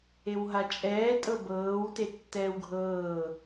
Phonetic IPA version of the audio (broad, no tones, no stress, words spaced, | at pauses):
ewɦat͡ʃʼɛː tʼɤbɤːw tetːɛːwɡʱɤː